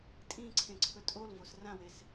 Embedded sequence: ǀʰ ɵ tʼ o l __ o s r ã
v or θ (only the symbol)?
v